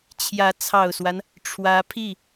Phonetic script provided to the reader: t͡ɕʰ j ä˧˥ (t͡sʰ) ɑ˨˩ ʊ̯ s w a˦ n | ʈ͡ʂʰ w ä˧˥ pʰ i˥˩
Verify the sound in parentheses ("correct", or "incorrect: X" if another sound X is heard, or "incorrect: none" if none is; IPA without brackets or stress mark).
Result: correct